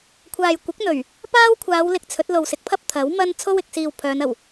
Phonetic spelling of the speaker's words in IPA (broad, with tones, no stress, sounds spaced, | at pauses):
kʷʰ aː˨ j kʷ ɪ˨˥ k̚ n̪ ɵ˨˩ ɥ | p aː˥ w kʷʰ aː˨˧ w l ɪ˧ k̚ t͡sʰ ɵ˨˥ t̚ l o˨ w s ɪ˨˥ k̚ pʰ ɐ˥ p̚ t̪ʰ ɐ˨˥ w m ɐ˥ n t͡sʰ o˥ w ɪ˨ k̚ s iː˨ w pʰ œː˨˧ n ɐ˨˩ w